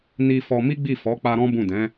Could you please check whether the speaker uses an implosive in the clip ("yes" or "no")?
no